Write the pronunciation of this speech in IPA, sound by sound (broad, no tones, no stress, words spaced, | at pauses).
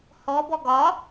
hɔbɔ ɡɒ